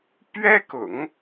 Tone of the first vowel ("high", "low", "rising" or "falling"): high